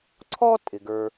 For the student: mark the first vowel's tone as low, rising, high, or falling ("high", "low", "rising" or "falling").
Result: high